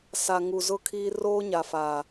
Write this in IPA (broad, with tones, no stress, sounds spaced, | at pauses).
s a˨ ŋ u˨ z ʊ˦ kʰ iː˦ r oː˦ ɲ a˨ f aː˨